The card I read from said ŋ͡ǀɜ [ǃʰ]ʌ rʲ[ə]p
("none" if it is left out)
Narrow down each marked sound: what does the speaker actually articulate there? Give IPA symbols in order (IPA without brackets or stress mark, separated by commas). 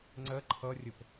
ǃʰ, ə